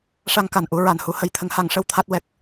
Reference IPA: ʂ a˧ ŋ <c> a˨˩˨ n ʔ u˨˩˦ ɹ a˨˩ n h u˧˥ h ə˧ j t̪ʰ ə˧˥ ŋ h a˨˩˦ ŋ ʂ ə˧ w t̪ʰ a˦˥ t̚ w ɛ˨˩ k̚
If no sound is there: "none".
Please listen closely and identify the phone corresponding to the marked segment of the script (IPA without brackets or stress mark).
k